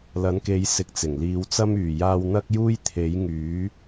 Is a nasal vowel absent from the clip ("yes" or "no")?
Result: yes